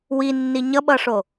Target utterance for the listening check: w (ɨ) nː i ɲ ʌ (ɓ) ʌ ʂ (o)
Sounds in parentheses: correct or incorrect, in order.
incorrect: i, correct, correct

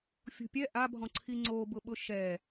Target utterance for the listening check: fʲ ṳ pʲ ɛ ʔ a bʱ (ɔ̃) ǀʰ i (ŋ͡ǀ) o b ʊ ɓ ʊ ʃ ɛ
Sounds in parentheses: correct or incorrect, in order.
correct, correct

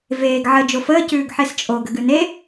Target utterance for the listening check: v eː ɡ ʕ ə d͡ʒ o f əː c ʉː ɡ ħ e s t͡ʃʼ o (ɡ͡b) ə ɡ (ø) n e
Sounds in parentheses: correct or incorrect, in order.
incorrect: ɡ, incorrect: ʉ

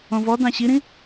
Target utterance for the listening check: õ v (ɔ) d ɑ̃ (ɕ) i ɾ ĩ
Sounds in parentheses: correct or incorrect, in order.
correct, correct

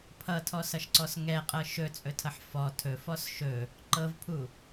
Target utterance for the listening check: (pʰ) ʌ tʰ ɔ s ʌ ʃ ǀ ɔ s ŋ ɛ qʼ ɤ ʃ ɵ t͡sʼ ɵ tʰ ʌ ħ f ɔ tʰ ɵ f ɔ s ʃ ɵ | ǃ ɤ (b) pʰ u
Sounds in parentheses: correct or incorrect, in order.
correct, incorrect: v

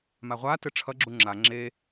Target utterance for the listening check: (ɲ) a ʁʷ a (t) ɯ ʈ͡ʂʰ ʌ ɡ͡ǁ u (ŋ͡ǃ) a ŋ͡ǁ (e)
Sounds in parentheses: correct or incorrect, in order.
incorrect: m, correct, incorrect: ŋ͡ǁ, correct

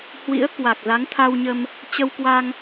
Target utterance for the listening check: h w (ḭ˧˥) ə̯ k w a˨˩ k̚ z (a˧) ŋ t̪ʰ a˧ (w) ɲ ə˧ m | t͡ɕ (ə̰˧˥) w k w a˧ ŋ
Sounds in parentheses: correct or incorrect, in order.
correct, incorrect: a˨˦, correct, incorrect: ə˧

